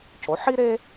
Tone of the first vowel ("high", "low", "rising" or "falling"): rising